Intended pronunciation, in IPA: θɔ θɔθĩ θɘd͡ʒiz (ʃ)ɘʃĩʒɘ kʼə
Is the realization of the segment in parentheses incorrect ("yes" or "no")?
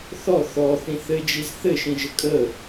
yes